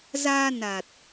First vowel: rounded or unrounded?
unrounded